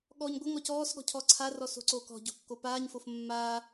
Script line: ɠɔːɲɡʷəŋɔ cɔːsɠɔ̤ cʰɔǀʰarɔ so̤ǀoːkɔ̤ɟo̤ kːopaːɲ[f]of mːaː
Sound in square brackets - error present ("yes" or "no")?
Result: no